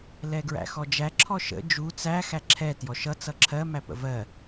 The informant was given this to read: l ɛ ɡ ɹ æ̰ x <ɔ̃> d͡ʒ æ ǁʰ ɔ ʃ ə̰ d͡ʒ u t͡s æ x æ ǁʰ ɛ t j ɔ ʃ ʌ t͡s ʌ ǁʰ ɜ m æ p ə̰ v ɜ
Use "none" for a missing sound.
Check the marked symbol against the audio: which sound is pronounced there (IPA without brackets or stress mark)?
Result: ɔ